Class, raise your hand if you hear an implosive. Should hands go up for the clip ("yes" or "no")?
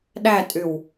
yes